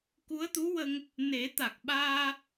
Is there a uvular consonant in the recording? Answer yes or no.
no